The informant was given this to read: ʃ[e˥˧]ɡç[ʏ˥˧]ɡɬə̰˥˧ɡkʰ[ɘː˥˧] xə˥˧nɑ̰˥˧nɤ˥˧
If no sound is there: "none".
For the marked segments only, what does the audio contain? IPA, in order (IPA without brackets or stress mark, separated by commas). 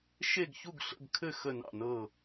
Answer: e˥˧, u˥˧, ɘ˥˧